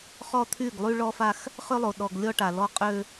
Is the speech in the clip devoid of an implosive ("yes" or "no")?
no